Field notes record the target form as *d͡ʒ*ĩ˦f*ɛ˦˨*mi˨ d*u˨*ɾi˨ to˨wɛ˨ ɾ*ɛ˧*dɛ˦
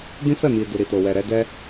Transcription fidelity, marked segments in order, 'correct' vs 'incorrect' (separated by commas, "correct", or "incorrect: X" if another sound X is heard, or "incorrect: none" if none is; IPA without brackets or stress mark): incorrect: d, correct, correct, correct